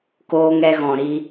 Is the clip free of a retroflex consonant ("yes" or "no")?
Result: yes